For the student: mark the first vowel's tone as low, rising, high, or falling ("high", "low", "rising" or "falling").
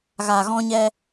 low